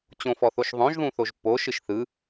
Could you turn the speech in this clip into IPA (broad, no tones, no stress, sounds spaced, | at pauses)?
t͡ɕ õ f ɔ θ o ʃ ðˤ õ ʒ ð ũ θ o ʒ pː o ʃ ɯ ʃ θ ɯ